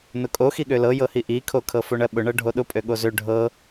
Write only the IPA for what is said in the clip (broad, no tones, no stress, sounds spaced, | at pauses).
n ʊ kʼ o x i ɠ ø l ɤ j ɤ h i ʔ i kʰ o kʰ ɤ f o ɳ ɜ ɓ ʊ ɳ ɤ ɖʱ o ɗ ʊ pʼ ø ɠ o z ø ɖʱ ɤ